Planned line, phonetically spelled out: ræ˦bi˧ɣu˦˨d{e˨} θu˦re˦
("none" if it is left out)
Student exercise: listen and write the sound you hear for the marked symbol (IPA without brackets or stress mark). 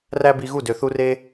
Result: ø˨